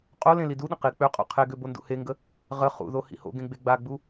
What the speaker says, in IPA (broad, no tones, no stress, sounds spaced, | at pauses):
qʼ o l ẽ l i d u ɗ ə̃ q i k͡p ø qʼ ɔ̰ qʰ e ɡ ø b o n d ṵ h e ŋ ɡ ə | ʁ ə χ ṵ ð o h ḭ h o̰ ɡ ẽ ɡ͡b e ɡ͡b a ɡ͡b u